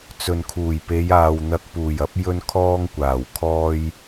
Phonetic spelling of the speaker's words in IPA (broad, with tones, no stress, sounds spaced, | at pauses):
t͡s ɵ˨ n kʰ uː˨˩ j p e˨˧ j aː˨ w n̪ ɐ˧ k̚ p uː˨˩ j ɐ˨˥ p̚ j ɵ˥ n kʰ ɔː˥ ŋ kʷ aː˨˩ w kʰ ɔː˧ j